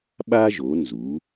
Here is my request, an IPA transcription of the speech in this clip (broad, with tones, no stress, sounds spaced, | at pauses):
ɓ a˥ ʒ o˨˦ n z u˨˦